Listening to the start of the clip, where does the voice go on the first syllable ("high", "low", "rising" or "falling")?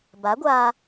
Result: rising